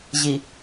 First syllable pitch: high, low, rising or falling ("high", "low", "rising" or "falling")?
low